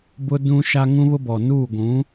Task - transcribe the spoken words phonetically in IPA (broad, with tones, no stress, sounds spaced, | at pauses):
b ʊ˦ d ũ˦ ʃ a˦ ŋ ũ˦ β ʊ˦ b ɔ˨ n uː˦˨ ɡʷ ũ˨˦